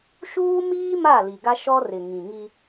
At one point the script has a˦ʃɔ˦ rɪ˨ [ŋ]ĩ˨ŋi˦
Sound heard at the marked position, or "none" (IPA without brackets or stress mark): ŋ